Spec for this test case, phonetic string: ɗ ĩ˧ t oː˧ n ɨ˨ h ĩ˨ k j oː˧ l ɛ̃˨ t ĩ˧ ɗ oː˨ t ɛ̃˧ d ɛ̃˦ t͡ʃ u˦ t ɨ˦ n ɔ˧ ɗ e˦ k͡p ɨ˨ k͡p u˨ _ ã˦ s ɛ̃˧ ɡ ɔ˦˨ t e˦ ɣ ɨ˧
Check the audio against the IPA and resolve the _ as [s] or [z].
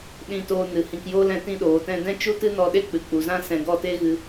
z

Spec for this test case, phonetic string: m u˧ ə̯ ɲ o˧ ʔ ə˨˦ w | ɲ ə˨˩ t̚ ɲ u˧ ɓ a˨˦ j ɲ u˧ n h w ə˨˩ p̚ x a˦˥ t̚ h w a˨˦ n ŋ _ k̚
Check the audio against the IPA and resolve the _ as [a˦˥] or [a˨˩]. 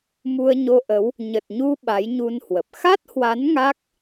a˦˥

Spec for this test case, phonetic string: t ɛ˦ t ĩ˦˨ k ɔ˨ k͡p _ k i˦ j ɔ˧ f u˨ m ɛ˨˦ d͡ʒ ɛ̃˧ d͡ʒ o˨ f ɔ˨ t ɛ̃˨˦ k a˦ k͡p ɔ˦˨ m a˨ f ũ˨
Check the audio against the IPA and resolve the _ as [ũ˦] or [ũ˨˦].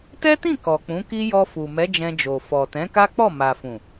ũ˨˦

